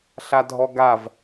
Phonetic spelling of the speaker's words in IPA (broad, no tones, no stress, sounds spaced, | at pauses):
ɬ a dʱ ɔ ɡ a v